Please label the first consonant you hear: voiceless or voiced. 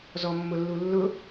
voiced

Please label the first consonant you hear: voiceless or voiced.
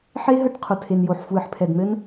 voiceless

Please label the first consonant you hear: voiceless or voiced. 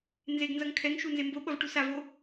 voiced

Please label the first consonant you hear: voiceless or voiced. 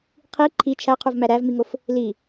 voiceless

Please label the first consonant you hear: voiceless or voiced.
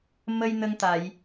voiced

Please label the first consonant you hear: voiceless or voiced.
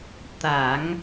voiceless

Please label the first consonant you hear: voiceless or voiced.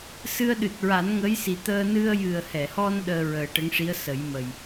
voiceless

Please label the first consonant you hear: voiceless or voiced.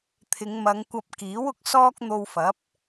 voiceless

